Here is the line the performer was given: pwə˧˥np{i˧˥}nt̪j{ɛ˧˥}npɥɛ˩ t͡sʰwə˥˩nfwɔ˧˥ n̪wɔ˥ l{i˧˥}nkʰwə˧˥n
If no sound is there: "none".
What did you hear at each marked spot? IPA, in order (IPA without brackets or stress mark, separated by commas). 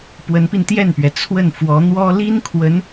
i˧, ɛ˥˩, i˥